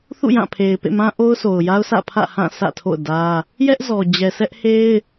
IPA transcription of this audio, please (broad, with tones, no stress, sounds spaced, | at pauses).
θ ṵ˦˨ j ã˦˨ pʰ e˨ ɪ̯ p ḛ˦˨ m ã˦ ʔ o˦ ʊ̯ sʰ o˨ ʊ̯ j a˦ ʊ̯ sʰ ä̰˦˨ pʰ ä̰˦˨ h ã˦˨ sʰ ä̰˦˨ tʰ o̰˦˨ ʊ̯ d ä˦ | j ɛ˦ ʔ z ɔ˨ d͡ʑ ɛ˨ sʰ ɛ˦ ʔ h e˦ ɪ̯